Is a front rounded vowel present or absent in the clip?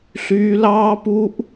present